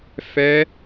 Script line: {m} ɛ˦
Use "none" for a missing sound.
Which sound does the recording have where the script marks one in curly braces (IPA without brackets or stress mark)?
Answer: f